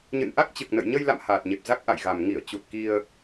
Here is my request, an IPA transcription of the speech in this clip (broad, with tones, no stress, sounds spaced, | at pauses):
ɲ ɨ̰˧˨ n ʔ a˦˥ k̚ t͡ɕ ɨ˨˩ k̚ n ə̰˧˨ j ɲ ə˧ j l a̰˧˨ m h aː˨˩ t̚ ɲ e˨˩ p̚ z a˦˥ k̚ ʔ a̰˧˨ j ɣ a˨˩ m ŋ i˧˩ ə̯ t͡ɕ u˨˩ t̚ k i˧ ə̯